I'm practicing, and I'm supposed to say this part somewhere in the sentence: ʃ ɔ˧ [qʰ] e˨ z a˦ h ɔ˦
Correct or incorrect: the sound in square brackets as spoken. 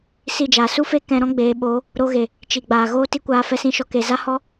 incorrect: k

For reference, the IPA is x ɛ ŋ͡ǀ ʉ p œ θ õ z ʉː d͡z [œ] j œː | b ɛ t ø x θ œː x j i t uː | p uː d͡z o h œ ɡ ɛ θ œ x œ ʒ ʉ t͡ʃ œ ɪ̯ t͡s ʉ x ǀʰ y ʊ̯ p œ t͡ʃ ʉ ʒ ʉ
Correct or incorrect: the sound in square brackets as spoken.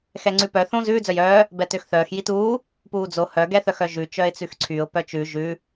correct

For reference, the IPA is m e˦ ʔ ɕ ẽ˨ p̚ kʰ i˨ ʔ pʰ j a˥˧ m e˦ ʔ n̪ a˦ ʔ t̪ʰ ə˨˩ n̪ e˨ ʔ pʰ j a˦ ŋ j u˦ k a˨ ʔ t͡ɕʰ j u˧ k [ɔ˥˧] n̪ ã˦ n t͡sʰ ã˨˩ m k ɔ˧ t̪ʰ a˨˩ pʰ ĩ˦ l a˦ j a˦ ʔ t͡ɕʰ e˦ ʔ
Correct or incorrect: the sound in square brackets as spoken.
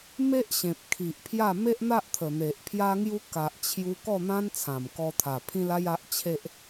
correct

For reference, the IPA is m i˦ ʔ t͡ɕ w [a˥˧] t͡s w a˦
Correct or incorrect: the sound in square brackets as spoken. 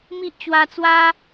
incorrect: a˧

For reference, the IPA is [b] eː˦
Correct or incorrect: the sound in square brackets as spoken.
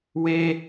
incorrect: w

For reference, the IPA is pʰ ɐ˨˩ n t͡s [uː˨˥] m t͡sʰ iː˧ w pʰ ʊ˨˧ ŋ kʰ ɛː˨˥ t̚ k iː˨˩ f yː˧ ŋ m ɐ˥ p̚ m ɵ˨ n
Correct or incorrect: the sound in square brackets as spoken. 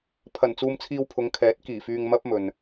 incorrect: uː˧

